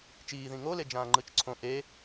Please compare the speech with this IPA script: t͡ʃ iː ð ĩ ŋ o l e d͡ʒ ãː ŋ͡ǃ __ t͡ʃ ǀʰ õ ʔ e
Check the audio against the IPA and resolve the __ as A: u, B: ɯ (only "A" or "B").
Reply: B